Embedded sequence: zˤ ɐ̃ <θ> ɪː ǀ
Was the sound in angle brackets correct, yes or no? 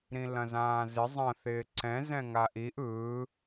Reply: yes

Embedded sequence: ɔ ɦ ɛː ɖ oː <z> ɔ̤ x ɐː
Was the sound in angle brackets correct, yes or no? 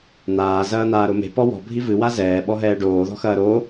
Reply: no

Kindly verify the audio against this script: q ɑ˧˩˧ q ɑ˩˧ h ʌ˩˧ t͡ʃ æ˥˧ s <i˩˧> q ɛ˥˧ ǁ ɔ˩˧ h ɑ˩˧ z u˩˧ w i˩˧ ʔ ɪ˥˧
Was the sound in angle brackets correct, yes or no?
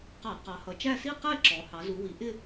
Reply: no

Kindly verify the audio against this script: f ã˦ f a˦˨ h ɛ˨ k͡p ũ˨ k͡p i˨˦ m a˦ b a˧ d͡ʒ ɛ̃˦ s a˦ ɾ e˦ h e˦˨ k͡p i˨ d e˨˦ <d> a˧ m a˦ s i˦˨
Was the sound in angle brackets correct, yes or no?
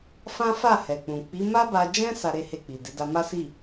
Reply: yes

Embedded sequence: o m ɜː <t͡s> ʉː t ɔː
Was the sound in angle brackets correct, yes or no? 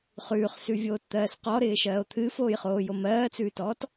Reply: yes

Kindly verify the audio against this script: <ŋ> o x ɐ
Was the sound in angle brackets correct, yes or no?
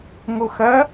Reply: yes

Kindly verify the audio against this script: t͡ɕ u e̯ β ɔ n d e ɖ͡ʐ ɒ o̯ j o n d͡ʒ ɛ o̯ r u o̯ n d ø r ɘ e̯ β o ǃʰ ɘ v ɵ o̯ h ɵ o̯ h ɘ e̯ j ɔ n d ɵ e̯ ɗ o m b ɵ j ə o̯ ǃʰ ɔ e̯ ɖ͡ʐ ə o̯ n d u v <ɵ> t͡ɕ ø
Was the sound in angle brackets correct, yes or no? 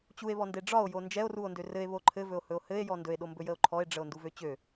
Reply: no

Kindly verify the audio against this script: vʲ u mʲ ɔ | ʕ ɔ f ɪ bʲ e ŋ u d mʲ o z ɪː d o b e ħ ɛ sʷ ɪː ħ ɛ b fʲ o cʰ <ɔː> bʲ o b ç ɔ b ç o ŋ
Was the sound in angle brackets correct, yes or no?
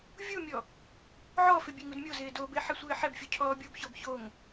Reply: yes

